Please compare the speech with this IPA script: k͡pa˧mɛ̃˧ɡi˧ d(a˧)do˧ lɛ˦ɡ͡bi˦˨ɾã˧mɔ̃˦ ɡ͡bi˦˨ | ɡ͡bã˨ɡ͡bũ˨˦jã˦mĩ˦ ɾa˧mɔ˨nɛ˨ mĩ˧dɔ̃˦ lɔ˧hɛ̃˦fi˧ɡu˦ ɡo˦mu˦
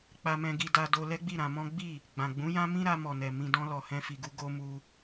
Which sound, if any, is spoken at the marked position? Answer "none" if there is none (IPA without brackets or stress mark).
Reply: a˧